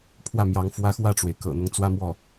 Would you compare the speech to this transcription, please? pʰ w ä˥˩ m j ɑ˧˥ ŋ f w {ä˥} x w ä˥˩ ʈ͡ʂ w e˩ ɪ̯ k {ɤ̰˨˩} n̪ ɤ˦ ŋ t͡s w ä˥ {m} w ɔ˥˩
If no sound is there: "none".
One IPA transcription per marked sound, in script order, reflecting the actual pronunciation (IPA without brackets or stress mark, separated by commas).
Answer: ä˥, ɤ̰˨˩, m